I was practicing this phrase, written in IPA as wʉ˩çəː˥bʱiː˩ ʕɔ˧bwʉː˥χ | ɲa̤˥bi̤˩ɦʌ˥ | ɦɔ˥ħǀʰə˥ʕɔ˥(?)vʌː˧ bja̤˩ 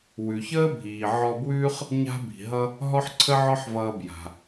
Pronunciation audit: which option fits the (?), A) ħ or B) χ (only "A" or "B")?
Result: A